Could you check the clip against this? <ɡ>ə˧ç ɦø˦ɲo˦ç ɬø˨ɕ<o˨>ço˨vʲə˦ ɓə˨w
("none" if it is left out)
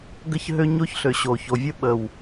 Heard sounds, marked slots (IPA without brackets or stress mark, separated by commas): ɡ, o˨